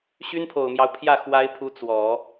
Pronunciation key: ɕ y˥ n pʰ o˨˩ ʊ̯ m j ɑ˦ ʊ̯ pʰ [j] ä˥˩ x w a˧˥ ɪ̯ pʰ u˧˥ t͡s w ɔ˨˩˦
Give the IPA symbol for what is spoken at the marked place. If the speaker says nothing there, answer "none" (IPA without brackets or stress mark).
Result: j